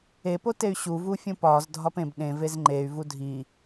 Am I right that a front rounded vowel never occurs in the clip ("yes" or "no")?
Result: no